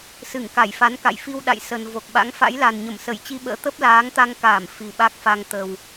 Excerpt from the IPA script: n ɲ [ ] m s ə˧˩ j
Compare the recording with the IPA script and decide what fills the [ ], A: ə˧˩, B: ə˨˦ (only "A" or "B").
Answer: A